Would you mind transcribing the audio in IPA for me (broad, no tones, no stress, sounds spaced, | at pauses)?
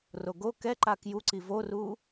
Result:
r o ɡ o k ɛ ǃ a k j u ǀ i v o r u